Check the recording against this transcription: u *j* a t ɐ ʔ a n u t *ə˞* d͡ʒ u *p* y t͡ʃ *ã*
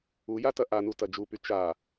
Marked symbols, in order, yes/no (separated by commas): yes, no, yes, no